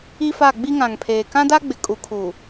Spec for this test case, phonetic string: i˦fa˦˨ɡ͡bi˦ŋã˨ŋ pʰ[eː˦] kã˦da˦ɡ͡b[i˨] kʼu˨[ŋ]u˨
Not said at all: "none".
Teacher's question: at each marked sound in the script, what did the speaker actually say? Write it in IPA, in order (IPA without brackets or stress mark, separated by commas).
eː˨, ɪ˨, kʰ